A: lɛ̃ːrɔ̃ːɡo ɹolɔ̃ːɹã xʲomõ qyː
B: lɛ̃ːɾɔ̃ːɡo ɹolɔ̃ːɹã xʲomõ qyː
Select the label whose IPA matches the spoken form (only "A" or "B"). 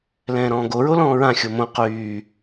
B